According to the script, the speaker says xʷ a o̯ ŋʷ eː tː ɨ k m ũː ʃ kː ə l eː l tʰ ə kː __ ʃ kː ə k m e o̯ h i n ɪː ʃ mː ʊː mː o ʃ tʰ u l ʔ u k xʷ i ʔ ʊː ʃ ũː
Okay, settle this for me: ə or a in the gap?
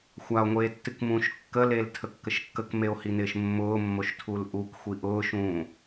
ə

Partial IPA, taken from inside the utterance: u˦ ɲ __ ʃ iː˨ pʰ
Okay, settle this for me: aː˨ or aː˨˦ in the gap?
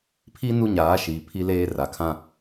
aː˨˦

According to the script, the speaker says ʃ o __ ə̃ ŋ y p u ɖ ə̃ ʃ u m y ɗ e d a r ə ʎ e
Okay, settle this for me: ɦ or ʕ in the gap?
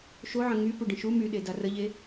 ʕ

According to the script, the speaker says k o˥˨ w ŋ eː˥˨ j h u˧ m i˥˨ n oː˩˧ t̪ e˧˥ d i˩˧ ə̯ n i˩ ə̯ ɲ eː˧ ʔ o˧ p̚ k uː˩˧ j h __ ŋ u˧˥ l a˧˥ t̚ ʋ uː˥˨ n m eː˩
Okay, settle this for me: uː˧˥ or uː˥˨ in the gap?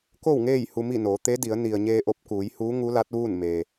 uː˧˥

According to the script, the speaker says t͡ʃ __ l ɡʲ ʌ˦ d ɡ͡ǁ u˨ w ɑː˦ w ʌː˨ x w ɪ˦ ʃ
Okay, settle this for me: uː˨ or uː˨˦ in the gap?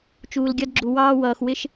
uː˨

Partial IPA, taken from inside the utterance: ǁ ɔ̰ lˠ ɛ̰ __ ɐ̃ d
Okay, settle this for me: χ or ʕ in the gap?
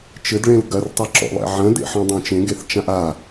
ʕ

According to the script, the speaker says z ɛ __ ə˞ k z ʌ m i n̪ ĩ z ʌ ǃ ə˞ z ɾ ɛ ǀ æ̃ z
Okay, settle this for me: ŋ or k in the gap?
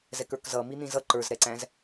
k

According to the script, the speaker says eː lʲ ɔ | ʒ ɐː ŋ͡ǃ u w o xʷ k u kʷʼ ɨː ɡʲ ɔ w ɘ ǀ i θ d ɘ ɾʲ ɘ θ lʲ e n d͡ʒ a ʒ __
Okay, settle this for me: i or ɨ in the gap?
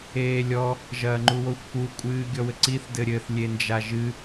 ɨ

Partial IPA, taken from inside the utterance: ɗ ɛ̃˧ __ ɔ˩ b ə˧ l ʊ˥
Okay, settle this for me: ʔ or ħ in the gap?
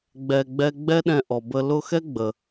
ʔ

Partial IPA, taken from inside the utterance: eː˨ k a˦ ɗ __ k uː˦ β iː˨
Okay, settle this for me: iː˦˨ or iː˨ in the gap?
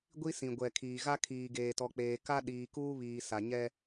iː˨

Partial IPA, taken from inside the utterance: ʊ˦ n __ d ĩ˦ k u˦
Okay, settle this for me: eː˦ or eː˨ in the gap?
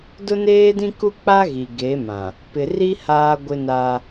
eː˦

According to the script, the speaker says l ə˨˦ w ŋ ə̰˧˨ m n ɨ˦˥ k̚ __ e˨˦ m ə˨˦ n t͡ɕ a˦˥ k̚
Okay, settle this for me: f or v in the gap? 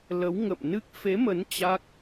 f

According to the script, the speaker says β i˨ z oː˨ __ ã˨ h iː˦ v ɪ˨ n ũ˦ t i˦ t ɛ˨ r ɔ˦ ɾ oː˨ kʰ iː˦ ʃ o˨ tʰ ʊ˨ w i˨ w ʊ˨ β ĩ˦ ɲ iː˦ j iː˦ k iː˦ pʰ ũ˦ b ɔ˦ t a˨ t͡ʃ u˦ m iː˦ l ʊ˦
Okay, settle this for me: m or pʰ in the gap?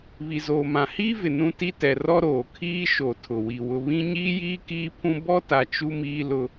m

